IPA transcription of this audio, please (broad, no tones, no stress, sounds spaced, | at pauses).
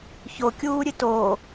ç o kʲ uː ɾʲ ɨ t oː